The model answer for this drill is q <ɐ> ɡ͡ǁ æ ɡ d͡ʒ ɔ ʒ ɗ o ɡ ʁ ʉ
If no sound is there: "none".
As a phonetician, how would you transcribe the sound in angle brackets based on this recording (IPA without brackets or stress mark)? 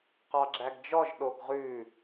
ɑ